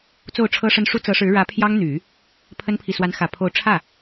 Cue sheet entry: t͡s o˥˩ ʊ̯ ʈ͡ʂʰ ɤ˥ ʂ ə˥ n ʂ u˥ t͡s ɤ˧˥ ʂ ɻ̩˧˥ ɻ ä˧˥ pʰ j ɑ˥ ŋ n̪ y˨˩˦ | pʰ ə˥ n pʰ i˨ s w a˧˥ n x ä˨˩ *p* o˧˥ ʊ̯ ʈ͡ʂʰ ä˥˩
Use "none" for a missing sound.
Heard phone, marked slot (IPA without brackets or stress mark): pʰ